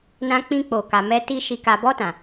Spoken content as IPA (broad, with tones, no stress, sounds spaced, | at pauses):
n ã˧ k͡p ĩ˧ k͡p o˨ k a˨ m ɛ˧ t i˧ ʃ i˧ k a˨ b ɔ˧ t ã˨